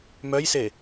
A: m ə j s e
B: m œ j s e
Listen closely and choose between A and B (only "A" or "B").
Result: B